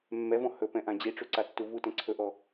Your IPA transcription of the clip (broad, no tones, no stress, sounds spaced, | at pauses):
mː ɛ v ɔ̃ h ɵ p ɛ̃ ʔ ã d͡ʑ i ʈ͡ʂ u ǀ a tː u v u t ɛ̃ ǀʰ ɵ ʔ ɔ